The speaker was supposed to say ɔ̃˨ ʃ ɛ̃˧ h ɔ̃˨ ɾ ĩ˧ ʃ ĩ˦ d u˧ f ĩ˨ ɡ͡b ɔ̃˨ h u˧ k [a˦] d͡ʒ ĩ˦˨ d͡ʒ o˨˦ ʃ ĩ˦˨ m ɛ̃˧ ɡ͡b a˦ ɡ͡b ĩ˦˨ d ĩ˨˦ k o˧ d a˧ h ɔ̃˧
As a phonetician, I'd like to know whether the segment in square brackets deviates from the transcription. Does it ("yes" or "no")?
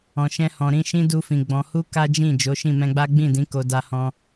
no